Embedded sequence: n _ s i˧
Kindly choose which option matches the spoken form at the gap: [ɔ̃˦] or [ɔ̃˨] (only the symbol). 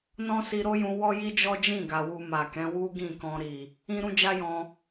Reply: ɔ̃˦